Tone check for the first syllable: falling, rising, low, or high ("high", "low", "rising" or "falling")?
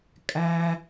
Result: low